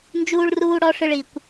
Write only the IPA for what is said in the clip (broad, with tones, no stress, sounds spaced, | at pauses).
n d͡ʒ uː˥ ɭ r uː˥ ɽ ɔ˥ ʂ ɨ˦ ɭ i˨ kʷ